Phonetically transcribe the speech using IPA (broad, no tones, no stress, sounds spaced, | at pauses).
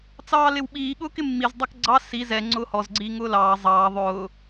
t͡s ɑː l ɪ w ɓ iː ɠ ʊː k ɪ mː i z dˤ ʌ k ɡ͡ǀ ɑ s i z ɛ ŋ͡ǀ ʊː h ɔ z ɡ͡ǀ iː ŋ ʊː l ɑː zˤ ɑː ðˤ ʊː